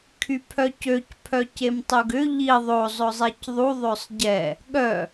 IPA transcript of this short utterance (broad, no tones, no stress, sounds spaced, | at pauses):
kʰ y pʰ œ c ø c pʰ œ c e m tˤ u ɡ ʏ ʎ i ðˤ o zˤ ʊ zˤ e c ðˤ u ðˤ ø sˤ ɟ ɛ | ɠ œ